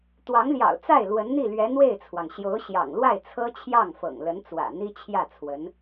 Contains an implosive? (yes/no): no